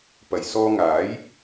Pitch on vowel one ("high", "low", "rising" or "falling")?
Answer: low